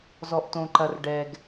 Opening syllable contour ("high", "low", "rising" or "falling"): low